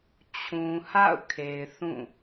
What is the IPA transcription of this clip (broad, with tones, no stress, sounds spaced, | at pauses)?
t͡ɕʰ ũ˨ h a̰˦˨ ʊ̯ kʰ e˨ ɪ̯ θ ũ˦˨